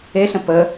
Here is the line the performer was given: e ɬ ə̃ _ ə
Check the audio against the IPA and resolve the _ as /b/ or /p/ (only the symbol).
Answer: p